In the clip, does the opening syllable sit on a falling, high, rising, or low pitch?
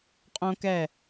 high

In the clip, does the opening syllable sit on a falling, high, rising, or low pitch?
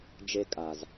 high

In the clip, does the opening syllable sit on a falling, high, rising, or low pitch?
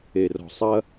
low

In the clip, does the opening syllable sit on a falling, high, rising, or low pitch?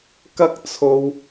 high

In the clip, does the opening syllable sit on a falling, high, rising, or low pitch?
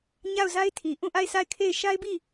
falling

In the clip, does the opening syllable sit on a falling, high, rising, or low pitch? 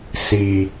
low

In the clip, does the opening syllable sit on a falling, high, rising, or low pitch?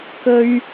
high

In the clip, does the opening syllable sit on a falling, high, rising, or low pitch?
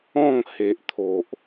falling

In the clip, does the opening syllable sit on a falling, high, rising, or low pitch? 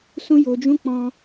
high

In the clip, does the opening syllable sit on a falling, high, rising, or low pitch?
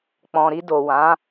low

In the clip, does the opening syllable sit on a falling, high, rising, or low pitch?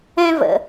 high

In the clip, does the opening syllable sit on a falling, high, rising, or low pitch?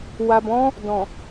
low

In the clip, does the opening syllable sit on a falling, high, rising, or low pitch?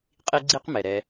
high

